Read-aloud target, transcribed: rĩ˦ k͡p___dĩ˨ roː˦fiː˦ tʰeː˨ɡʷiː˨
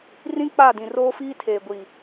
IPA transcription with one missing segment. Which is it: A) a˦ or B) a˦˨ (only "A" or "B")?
B